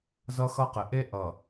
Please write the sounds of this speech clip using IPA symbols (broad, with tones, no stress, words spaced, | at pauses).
zʌ˦xʌ˦qɪ˨ ʔe˦ ʔʌ˨